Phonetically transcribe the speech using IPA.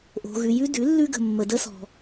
ʔ o̤˨ ɣ ʉ˨ j ʉ˦ d ʉ˩˥ lː ʉ˦ ɡ ə̤˨ mː ə˨ d ə˦ s ɔ̤˨

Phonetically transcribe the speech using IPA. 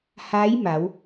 h aː˧˥ j m a˩˧ w

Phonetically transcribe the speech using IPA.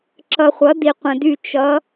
ǁ ʌ˨ χʷ ʌ˩˥ d i˨ qʷ ə̃˨ d y˦˨ t͡ʃ ʌ˧˥

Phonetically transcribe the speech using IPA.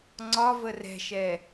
ŋ͡ǀ ɒ v ə r ɛ̤ ʃ ɛ

